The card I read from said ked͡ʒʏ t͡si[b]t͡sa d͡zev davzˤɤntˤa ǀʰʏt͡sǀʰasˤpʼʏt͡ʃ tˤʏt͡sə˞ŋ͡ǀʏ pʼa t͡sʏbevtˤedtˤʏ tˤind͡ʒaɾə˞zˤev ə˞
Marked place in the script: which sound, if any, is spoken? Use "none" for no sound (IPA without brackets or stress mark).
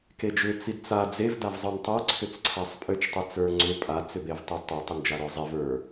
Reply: d